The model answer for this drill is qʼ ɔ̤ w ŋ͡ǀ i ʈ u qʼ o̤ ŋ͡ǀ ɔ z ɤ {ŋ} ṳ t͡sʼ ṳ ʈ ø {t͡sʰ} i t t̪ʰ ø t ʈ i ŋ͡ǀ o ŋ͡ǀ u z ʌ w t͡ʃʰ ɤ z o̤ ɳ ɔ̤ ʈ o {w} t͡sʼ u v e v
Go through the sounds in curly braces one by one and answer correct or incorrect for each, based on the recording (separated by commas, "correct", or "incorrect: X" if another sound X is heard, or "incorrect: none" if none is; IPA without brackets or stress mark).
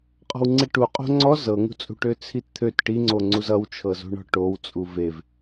correct, correct, correct